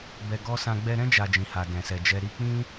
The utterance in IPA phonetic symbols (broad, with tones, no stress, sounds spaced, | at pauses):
b ɛ˧ ɡ ɔ˦ s ã˧ ɡ͡b ɛ˧ ɾ ɛ̃˦ d͡ʒ a˧ d͡ʒ ĩ˨ h a˨ d ɛ̃˨ s ɛ˨ d͡ʒ ɛ˧ ɾ i˧ k͡p ĩ˦